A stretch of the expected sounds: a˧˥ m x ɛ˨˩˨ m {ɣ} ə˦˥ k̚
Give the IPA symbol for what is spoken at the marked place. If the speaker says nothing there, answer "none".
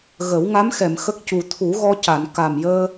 x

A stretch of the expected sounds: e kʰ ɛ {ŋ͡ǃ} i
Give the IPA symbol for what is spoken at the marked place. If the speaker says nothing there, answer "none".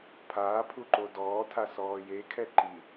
ǃ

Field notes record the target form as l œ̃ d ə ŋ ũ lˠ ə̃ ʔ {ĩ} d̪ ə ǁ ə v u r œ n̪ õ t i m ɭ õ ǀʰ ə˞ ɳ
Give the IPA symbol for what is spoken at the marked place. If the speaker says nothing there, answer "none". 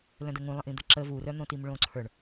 ĩ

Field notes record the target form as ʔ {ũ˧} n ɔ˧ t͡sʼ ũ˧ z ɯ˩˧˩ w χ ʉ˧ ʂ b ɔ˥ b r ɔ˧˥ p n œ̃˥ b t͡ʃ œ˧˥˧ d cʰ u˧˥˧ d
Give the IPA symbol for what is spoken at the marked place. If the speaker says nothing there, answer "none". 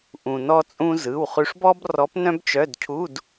ũ˩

